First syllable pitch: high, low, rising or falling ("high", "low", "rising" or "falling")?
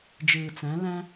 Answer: low